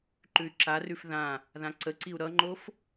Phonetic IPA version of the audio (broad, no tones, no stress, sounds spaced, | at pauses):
ǃ ʉ y̯ ǁ a r ʉ f ð ã | ð ã ǀ ə ǀ i u̯ ɾ ʌ ŋ͡ǃ o f